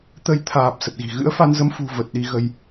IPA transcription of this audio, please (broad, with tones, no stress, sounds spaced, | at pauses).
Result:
t̪ ə˧ j t̪ʰ aː˨˩ p̚ s ə˨˩ t̚ ɣ i̤˨˩ ɣ ɨ̰˧˥ ə̯ f a˧ n z ə˧ m f ṳ˨˩ v ə˨˩ t̚ ɗ i˧ ɣ ə˧ j